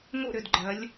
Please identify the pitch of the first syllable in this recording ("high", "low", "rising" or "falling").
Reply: falling